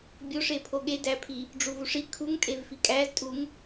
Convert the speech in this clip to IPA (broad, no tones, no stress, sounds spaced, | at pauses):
bʲ o ʂ e pʰ o ɠ e d æ pʰ i | ɖ͡ʐ u v u ʂ i kʰ u ŋ tʼ e v f i kʼ æ z tʼ u ŋ